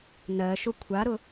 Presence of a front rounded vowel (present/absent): absent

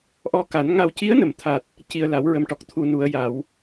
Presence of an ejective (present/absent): absent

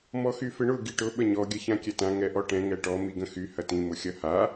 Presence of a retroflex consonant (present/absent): present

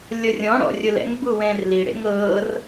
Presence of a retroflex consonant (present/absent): present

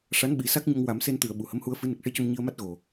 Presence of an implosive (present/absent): present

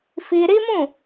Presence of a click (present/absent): absent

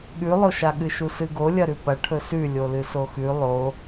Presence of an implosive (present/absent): present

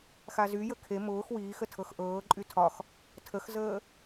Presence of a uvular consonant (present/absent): absent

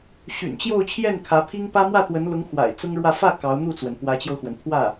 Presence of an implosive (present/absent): absent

